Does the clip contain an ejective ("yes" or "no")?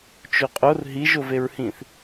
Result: yes